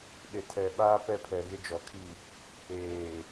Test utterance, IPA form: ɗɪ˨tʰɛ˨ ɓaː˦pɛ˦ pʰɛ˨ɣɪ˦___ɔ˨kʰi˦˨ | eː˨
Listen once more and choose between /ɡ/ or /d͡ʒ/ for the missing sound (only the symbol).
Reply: d͡ʒ